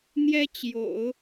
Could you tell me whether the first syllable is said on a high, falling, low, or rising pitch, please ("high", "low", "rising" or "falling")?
high